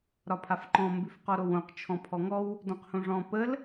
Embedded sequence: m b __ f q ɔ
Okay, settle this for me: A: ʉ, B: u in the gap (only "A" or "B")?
A